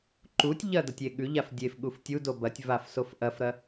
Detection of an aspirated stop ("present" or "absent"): absent